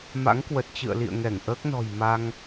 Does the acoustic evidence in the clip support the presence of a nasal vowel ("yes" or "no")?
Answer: no